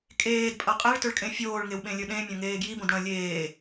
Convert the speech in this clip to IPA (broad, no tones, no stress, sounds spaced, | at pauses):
kʼ eː d pʼ ɐ qʼ e ɭ t ɵ ɭ kʼ ẽ fʲ oː ɭ ŋ e w ɓ ẽ lʲ ɵ ɗ ẽ mʲ ɐ̃ ŋ eː ɡ j i b õ d ɽ ɐ̃ lʲ eː